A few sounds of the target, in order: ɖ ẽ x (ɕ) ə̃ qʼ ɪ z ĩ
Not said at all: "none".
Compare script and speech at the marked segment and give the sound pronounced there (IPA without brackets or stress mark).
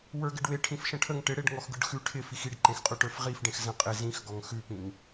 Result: z